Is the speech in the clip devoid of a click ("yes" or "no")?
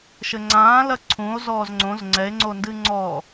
no